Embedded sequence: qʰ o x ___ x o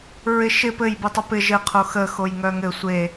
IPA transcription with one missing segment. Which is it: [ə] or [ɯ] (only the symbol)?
ə